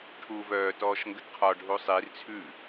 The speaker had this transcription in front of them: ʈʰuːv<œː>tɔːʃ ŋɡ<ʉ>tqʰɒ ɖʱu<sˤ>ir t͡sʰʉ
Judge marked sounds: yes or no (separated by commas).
yes, no, yes